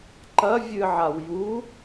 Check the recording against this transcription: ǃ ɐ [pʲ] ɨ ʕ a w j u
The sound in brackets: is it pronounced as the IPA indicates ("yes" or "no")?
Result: no